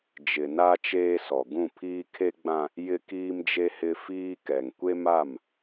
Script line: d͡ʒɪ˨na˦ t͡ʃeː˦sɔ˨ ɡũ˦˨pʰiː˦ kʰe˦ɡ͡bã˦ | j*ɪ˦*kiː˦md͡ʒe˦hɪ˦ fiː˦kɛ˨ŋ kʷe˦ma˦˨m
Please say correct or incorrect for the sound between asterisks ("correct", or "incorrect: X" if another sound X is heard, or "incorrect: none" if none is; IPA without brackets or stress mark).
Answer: correct